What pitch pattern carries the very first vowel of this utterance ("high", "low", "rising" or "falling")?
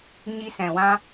high